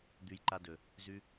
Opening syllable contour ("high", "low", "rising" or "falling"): low